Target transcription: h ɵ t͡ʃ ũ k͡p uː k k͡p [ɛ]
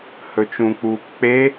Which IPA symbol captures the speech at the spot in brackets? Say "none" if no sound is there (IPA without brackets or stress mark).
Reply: e